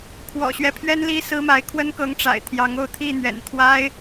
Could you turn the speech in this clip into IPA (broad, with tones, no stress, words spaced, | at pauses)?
kʰwɔ̰˨˩ɕɥɛ˦pʰɥɛ˦nli˦ sɹ̩˦ma˨˦ɪ̯ kʰwə˦nkɤ˨˦ŋ ʈ͡ʂa̰˨˩ɪ̯ t̪ʰjɑ˨˦ŋo˥˨ʊ̯ t̪ʰi˥˨ n̪ɥɛ̰˨˩nt̪ʰwa˦ɪ̯